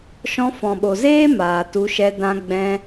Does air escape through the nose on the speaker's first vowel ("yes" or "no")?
yes